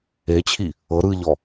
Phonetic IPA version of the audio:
e t͡ɕʰ i | ɤ ɾ ɯ ʎ ɔ

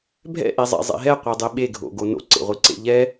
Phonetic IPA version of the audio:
bʱ ɛ̰ ʔ i zˤ ɛ̰ zˤ ḛ ɦ ɛ qʷ ɛ dˤ i ɓ e ɡʱ o̰ ɡ o n o̰ ǀ ḛ ʁʷ i ǀ ḛ ʎ ɛ

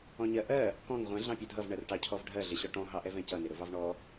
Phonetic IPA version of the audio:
ɔ̃ ɲ ɜ ʔ ɜ | k ɔ̃ ŋ ʁʷ ɛ̃ ɮ ɑ̃ pʲ ɛ dʱ ʌ v ɳ ɜ r ʈ ɑ cʰ ɔ v ɖʱ ɜ ɮ ɪ ɕ ɔ ʈ ɔ̃ ɦ ɑ ʔ ɛ v ɛ̃ c ʌ n ɪ ɾ ʊ v ɑ v ɳ ɔ

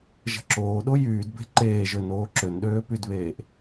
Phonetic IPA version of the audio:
ʒ ə̤ ǁ oː ɗ o j yː d b e̤ ǃ eː ʒ ø n oː ǁ ø n ɗ øː p y d β eː ʔ

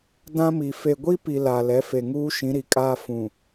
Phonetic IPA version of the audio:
d ã˦ m i˨ f e˨ ɡʷ i˦ p i˨ l a˨ l ɛ˨˦ f e˨ ŋ uː˦ ʃ ĩ˨˦ ɾ i˨ kʼ aː˦ f ũ˨

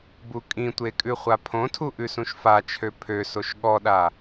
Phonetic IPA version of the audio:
b u kʼ ĩ tʷ e kʼ ʉ χʷ a pʰ õ tʰ u ʔ ʉ s ũ ʃ f a t͡ʃʰ ø pʰ ø s o ʃ ɠ ɔ ɗ a

